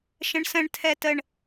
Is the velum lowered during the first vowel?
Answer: yes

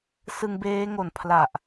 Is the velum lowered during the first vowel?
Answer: no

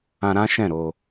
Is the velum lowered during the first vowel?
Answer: yes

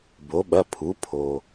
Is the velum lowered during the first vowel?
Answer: no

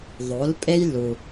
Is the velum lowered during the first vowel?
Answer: no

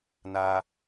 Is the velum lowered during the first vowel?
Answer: no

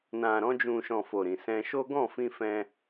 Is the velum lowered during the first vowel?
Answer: yes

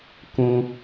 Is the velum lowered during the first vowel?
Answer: yes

